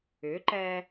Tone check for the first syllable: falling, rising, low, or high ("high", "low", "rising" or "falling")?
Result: rising